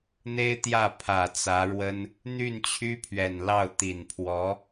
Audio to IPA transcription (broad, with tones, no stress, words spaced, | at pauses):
n̪e˥ɪ̯t̪jä˥˩ pʰä˨˩t͡sä˧˥ɻwə˥n | n̪y˥˩nt͡ɕʰy˥pʰɥɛ˨˩nlɑ˥˩ʊ̯ t̪i˨˩npʰwɔ˧˥